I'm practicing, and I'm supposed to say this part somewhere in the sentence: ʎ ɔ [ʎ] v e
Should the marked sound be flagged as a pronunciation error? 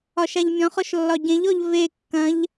no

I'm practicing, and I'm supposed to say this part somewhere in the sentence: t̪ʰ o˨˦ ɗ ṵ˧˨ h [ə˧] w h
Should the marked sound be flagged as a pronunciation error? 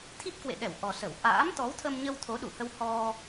no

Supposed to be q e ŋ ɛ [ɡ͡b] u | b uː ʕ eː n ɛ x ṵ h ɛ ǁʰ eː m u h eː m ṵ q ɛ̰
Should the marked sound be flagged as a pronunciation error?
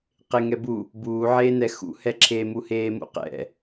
yes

